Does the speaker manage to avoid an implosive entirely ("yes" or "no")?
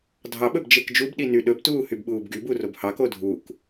no